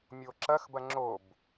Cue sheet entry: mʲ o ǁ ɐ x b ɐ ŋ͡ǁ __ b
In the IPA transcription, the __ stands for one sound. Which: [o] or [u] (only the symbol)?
o